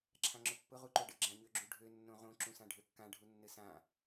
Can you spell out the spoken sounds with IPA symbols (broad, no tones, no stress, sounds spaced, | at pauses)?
ǁʰ ã ŋ͡ǁ ʊ pː ʊ ʁ u ǃ o ɖ ɘ ɡ͡ǁ ã ɲ ø ɡ͡ǁ u ɖʱ ø nː õ ʁ õ ǁ ũ s ã ɖʱ ø kː ã ɖʱ u nː ɘ s ã